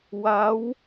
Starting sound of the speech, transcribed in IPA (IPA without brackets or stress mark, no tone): w